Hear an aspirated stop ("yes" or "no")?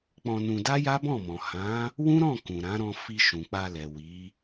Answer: no